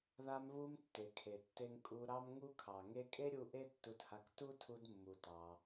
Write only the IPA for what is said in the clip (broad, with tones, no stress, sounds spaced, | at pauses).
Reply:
ð a˧ m β u˧ m tː e˨ kʰ e˨ tː e˧ ŋ kʼ u˧ ɾ ɑ˦ m ŋ u˦ kʰ ɑ˨ ŋ e˧ kʼ e˦ ɾʲ u˧ ʔ e˦ tː u˧ t h a˧ k t u˦ tʰ u˧ d mː u˨ t ɑ˧